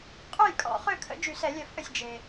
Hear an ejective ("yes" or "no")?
yes